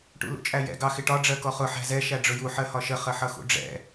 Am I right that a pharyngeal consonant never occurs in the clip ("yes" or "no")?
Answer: no